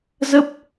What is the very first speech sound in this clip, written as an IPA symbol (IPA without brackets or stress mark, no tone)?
z